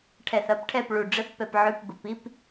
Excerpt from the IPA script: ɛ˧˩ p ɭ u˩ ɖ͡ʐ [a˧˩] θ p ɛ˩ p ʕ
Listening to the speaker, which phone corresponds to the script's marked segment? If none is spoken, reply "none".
ə˧˩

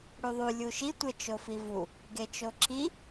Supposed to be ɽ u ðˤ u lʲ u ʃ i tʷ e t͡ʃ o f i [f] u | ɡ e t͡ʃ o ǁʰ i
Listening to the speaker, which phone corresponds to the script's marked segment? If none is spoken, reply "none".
v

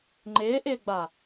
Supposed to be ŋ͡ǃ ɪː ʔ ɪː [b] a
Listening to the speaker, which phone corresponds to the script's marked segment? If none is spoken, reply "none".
ɡ͡b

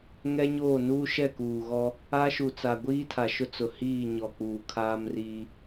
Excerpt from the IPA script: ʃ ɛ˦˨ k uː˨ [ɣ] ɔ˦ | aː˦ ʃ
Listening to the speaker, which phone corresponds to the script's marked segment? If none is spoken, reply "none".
ɣ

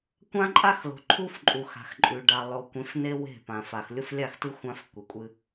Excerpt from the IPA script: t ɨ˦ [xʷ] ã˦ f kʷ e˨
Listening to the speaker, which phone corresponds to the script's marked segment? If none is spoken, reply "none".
xʷ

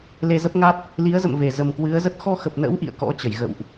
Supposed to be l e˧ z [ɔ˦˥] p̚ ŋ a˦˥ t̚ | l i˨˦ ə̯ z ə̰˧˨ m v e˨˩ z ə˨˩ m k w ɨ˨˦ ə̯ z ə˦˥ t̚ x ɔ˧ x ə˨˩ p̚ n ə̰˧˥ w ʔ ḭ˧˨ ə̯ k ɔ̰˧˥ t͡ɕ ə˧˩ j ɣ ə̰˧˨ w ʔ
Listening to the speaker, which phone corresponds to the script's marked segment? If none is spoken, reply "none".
ə˦˥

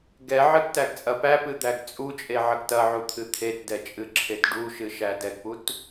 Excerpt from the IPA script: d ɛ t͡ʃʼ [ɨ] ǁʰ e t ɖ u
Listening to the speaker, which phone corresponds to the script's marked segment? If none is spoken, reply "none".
ɨ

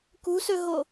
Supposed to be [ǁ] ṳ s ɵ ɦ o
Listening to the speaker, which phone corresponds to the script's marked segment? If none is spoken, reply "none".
k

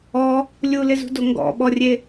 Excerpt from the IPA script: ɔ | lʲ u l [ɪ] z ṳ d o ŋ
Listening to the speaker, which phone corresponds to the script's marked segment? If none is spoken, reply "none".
ɪ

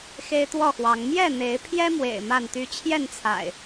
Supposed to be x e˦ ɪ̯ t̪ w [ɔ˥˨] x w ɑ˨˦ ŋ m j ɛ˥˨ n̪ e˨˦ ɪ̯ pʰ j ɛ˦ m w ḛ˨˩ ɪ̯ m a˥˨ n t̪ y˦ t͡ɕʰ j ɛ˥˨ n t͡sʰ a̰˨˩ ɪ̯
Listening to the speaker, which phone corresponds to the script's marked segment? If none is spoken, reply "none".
ɔ˥˨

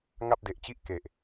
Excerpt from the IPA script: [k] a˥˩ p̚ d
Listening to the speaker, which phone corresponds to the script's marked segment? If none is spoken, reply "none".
ŋ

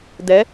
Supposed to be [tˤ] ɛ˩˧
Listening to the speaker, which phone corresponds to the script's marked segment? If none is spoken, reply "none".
d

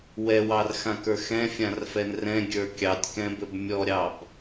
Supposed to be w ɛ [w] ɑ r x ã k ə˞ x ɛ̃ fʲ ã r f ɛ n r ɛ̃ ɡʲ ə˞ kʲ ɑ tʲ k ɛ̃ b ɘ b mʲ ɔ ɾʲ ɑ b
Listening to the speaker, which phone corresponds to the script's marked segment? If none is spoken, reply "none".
w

